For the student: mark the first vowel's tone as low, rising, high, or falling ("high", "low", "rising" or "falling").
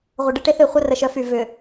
low